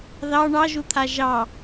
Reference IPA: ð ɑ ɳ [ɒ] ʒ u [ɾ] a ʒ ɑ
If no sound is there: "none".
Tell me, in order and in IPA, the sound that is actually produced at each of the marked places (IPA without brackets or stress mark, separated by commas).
ɑ, t̪ʰ